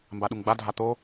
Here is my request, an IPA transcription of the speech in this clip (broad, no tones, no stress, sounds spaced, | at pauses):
m b a ɗ u ŋ ɡ͡b a dʱ a t̪ o